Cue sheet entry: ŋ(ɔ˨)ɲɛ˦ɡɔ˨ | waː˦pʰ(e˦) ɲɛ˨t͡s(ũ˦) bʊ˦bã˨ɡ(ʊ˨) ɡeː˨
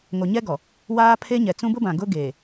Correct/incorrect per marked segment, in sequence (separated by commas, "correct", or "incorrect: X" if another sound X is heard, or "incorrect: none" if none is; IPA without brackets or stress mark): incorrect: o˨, correct, correct, incorrect: ʊ˦